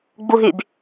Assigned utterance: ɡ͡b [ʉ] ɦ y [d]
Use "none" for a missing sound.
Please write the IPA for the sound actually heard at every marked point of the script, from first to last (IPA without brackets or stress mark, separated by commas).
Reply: u, b